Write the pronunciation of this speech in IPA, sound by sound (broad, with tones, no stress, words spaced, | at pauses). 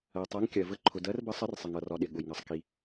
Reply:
ɜ˩tˤɜ˨˥ŋkʲɜ˩ və˨˥ǃʰʊ˩dɜ˨˥rbə˨˥ sˤə˨˥rsˤɪ˩ŋʌ˩rɒ˩ ɗɪ˩ɠʊ˩jŋʌ˩sˤ ki˩